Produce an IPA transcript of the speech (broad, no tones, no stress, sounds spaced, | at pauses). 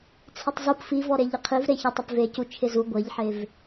t͡sʰ ɪ tˤ z u p f i v ɔ ɾ e ʎ ɪ qʰ i v ɾ e ç i tˤ ɪ p v e c u t͡ʃʰ ɪ z u ɡʷ e ʎ ħ e v